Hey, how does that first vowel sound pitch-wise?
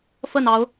falling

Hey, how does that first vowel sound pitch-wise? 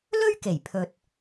high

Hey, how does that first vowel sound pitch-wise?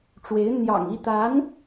rising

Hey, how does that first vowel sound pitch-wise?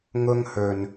high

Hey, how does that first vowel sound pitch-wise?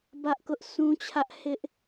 high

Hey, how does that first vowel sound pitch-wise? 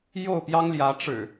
falling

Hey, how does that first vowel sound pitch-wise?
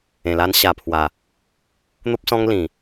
low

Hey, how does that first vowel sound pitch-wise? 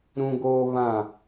high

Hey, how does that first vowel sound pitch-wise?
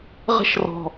high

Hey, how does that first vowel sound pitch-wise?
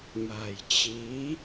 low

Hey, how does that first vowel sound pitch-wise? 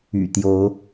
low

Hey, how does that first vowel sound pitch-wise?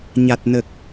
low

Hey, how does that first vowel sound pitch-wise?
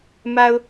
low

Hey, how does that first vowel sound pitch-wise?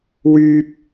high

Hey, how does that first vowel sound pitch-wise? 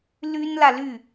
high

